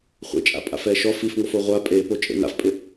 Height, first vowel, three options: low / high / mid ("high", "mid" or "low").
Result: mid